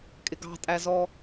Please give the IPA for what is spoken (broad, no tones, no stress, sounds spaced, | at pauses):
kʼ ɪ ɡ ɑ̤ tʼ æ z ɔ